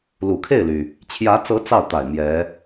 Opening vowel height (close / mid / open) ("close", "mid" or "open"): close